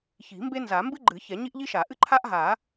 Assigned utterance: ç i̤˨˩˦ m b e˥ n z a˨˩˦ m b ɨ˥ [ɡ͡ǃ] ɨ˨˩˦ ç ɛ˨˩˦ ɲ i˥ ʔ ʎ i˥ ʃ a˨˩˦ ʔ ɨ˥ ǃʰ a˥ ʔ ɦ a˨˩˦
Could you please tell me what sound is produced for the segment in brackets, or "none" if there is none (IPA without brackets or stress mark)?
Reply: ɡ͡ǃ